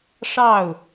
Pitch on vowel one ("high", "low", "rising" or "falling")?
falling